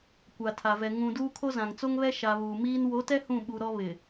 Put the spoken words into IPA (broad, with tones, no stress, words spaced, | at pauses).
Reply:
kʷa˨tʰa˨vɛ˨ ŋũ˨ duː˦kʰo˦zã˨ŋ t͡so˦ŋβɛ˦ ʃa˨ βuː˨miː˦n wo˨˦tɛ˦ hũ˦˨ɓu˨ɾɔ˦ βɪ˨